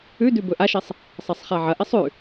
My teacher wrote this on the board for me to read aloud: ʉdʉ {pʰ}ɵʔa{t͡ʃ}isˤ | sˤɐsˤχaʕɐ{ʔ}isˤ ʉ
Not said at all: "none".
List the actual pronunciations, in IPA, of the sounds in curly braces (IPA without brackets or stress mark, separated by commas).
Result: b, ʃ, ʔ